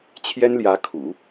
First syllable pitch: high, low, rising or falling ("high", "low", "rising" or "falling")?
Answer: high